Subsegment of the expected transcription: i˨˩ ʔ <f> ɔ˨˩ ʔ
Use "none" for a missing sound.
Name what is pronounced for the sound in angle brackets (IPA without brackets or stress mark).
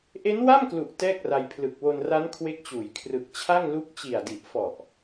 f